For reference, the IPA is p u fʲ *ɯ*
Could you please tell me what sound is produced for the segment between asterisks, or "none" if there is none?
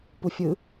ɯ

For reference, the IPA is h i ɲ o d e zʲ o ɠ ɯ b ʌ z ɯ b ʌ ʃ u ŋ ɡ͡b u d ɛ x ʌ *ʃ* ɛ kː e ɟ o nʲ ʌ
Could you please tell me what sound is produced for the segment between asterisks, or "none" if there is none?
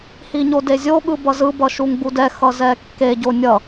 z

